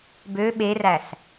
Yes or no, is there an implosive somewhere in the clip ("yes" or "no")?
yes